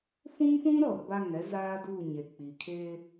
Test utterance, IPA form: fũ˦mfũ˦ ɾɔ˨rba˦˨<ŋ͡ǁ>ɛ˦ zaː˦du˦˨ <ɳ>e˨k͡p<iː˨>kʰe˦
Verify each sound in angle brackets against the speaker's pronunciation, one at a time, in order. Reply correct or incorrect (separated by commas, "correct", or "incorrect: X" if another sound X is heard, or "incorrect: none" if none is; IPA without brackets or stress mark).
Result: incorrect: ŋ, incorrect: ɲ, incorrect: i˨